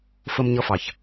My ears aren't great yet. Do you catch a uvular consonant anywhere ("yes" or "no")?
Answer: no